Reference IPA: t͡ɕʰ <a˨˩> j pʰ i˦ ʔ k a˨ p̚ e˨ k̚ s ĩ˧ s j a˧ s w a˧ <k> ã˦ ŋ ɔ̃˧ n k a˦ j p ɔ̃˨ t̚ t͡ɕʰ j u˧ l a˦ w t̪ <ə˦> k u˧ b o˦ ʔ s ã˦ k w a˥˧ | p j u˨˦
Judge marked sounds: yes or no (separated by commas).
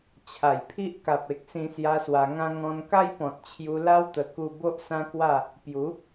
yes, no, no